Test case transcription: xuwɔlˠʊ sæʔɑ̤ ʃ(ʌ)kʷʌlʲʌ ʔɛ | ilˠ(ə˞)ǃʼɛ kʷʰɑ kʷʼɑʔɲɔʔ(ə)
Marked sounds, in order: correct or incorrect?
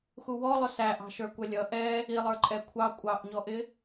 incorrect, correct, incorrect

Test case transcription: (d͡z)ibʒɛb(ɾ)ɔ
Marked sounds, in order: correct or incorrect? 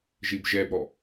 incorrect, correct

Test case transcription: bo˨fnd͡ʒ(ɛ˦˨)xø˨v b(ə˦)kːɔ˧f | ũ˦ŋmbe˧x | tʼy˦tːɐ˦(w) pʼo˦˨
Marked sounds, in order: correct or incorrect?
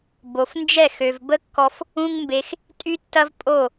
correct, correct, incorrect

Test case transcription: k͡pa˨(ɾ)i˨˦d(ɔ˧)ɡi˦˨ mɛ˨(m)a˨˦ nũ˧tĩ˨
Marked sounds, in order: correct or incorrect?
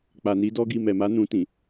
incorrect, incorrect, correct

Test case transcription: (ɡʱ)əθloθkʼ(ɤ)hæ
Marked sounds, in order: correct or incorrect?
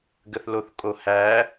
incorrect, incorrect

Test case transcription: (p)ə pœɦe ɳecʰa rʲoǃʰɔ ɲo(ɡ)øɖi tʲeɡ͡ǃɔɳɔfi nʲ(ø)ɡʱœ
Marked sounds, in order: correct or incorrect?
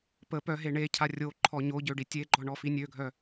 correct, incorrect, correct

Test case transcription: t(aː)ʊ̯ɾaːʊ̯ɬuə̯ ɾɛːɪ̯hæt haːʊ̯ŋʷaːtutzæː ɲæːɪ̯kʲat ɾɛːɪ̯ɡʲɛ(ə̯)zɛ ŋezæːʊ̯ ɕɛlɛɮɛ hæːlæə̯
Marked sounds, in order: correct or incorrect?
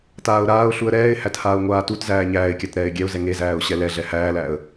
correct, incorrect

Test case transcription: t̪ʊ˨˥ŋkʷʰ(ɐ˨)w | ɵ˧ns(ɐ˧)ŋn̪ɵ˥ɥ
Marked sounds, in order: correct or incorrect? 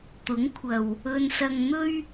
correct, correct

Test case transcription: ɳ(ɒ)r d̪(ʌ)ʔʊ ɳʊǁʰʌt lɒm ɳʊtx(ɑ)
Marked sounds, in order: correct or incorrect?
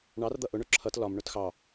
incorrect, correct, correct

